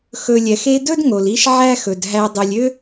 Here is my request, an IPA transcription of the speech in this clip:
x ɵ˨ lʲ ɛ˩ x e˦ d ɵ˥ d ŋ o˩ l i˦ ʃ ʕ æ˦ x ɵ˩ d ɦ æ˨ dˤ ø˨ lʲ ø˦

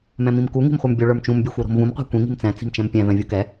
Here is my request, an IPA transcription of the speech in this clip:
m ɛ̃ m ĩ m k u ŋ i̤ m χʷ ə˞ m bʲ o ɭ ə˞ m t͡ʃ ũ m bʲ ə˞ xʷ ə˞ ɾ o̤ m v ũ m qʷ ɛ̤ kʷ ĩ ŋ i̤ m t͡s ɛ̃ t͡s i̤ m t͡ʃ ɛ̃ m pʲ ɛ̃ v ɛ̃ vʲ u k ɛ

